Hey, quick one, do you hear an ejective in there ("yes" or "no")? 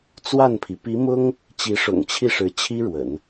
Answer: no